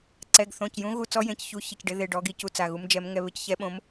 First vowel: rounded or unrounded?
unrounded